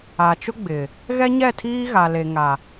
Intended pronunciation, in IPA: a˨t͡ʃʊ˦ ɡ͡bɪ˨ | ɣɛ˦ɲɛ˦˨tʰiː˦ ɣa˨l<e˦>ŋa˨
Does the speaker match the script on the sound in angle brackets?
no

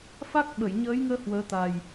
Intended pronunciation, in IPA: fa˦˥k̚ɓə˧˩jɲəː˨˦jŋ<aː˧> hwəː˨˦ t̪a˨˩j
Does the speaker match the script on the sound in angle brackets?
no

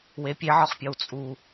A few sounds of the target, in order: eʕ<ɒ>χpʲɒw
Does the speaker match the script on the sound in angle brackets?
yes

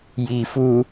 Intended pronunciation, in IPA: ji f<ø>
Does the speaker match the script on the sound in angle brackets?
no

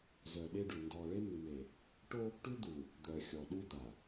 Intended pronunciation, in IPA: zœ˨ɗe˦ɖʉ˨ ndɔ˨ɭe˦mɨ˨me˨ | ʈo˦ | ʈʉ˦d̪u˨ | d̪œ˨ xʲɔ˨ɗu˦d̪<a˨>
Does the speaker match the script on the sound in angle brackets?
yes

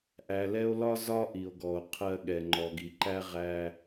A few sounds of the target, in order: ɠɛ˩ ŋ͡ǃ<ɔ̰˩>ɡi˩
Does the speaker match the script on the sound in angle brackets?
no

